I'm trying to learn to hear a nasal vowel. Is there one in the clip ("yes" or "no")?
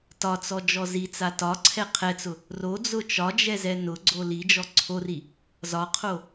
no